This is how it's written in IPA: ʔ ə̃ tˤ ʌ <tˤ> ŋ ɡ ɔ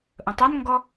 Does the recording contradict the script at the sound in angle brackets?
yes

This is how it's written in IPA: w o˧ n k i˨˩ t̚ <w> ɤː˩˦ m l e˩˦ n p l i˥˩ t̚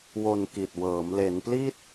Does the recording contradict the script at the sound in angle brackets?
no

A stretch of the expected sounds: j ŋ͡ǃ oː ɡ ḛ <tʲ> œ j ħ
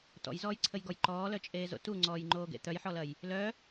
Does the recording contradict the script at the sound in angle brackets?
yes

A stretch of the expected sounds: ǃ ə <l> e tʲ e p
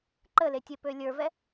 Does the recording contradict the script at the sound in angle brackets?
no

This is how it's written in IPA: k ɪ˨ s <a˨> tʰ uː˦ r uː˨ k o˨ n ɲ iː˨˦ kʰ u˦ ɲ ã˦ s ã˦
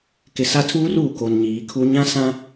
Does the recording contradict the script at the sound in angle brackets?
yes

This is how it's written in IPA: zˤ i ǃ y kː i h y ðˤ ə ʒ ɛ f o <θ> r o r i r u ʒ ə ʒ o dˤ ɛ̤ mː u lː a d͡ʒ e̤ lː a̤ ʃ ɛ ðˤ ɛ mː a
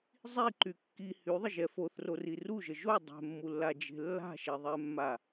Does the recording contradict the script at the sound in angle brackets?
no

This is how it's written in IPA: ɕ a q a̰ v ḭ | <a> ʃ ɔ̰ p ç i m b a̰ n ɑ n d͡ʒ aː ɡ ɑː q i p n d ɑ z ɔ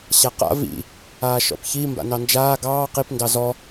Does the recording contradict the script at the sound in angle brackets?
yes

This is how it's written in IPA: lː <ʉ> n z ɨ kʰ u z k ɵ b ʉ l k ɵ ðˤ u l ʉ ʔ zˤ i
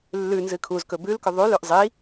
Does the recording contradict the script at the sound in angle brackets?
no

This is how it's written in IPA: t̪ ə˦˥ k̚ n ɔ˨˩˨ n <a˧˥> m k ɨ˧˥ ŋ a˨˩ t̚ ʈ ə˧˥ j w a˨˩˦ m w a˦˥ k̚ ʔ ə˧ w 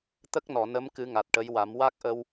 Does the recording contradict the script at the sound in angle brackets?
yes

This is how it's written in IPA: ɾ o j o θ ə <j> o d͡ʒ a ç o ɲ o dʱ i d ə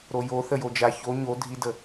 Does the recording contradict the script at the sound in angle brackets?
no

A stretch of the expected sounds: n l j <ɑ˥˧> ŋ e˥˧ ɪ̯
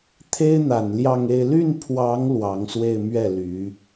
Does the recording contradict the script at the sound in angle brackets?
no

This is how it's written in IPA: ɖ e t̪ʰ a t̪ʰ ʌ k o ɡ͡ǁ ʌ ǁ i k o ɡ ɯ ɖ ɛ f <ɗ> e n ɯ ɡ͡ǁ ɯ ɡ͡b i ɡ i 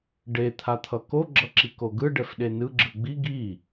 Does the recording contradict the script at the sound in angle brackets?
no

